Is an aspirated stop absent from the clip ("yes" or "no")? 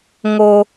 yes